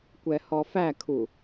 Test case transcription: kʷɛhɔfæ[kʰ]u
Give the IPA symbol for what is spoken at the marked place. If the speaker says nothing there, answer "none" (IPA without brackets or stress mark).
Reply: kʰ